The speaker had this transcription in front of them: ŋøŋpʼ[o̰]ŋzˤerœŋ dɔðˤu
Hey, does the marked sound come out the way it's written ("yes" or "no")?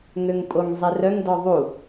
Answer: no